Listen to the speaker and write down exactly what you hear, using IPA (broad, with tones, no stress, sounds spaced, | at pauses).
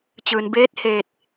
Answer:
t͡ɕ ɯː˩ n b eː˧˥ t̚ h eː˧˩ t̚